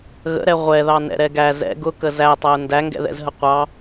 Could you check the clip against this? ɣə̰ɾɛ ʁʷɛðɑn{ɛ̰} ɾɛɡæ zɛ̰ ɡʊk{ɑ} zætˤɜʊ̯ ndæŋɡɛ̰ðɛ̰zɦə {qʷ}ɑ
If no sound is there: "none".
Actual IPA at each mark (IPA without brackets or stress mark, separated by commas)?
ɛ̰, ə, qʷ